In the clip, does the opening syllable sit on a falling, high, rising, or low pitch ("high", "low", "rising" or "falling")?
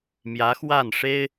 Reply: rising